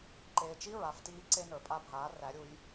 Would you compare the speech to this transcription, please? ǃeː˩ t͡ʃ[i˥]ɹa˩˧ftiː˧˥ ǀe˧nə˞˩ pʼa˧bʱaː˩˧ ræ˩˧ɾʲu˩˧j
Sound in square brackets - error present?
no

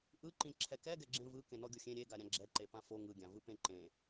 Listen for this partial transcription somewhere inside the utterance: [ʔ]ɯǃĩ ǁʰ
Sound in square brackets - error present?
no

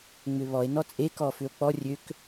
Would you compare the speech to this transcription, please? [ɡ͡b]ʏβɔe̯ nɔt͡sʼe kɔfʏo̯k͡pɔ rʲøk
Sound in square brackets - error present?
yes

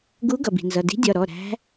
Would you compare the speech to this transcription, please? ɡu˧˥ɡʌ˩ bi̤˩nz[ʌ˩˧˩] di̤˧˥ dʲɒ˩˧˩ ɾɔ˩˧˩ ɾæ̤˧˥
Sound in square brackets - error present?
no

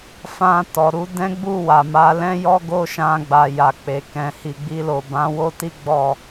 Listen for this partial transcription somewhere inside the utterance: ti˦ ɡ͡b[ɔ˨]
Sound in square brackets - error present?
yes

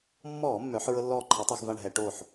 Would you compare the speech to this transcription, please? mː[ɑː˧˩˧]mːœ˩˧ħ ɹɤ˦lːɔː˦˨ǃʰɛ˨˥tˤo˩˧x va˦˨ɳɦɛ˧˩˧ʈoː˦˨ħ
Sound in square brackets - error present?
yes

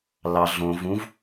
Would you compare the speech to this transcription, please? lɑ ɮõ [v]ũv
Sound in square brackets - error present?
no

